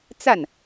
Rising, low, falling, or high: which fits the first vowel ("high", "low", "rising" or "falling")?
falling